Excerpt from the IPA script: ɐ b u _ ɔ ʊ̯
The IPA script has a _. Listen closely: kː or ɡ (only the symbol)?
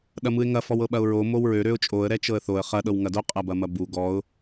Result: ɡ